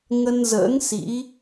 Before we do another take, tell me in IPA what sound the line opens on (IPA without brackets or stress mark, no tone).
ŋ